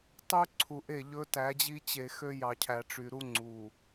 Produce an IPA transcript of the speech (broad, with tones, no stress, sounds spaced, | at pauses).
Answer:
tˤ ʉ˦ ǀʰ u˨ ʔ e˦˨ ʎ ɵ˦ t æ˨˦ d͡ʑ i˦ t͡ɕ e˨ x ø˦ j ɑ˨ cʰ æ˨ ʈ͡ʂ y˨ ɾ u˦ ŋ͡ǀ u˨